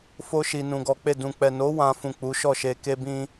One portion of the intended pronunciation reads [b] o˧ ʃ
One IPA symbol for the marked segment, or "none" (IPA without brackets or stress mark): f